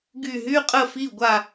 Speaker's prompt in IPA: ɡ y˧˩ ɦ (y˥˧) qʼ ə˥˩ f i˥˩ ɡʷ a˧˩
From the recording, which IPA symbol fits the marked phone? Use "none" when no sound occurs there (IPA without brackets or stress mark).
y˥˧